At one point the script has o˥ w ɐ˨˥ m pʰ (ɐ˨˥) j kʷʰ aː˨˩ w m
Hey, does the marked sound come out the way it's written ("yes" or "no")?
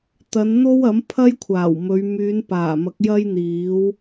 no